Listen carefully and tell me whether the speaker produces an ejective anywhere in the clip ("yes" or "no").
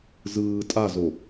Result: yes